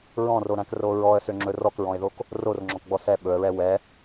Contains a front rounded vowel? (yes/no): yes